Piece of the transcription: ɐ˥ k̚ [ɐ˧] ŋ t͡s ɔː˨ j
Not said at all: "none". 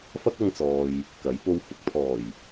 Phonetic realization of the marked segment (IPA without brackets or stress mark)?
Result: ɐ˧